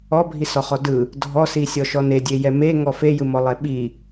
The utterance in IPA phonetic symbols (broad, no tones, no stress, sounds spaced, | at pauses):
ɔ bʱ i s ɔ χ ɔ d ɯ | dʱ ɔ s i sʲ ɔ ʃ ɔ n e dʲ e j ɛ m e ŋ ɔ f e j ɯ m ɔ lˠ ɛ ɓ i